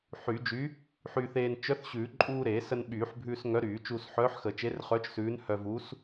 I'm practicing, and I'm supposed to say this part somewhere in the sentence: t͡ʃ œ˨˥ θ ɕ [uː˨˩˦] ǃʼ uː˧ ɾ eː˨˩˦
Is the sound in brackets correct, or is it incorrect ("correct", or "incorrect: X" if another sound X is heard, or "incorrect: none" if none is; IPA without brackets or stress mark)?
incorrect: ʉː˨˩˦